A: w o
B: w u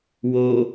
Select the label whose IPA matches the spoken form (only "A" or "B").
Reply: A